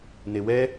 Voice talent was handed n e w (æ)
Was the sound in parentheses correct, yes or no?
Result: no